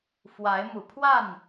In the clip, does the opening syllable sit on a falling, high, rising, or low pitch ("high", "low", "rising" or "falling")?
rising